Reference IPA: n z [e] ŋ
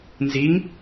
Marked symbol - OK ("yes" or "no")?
no